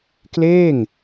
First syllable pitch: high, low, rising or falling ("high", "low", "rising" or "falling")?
falling